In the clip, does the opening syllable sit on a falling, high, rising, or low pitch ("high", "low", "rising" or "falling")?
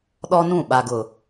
high